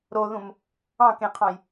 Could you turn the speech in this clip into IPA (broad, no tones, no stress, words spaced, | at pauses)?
ɾoðũm | ɑ̃kẽqʰɑ̃j